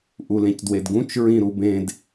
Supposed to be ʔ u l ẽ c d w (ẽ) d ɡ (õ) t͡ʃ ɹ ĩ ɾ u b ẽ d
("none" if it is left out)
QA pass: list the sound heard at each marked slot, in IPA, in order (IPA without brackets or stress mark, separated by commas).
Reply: e, ũ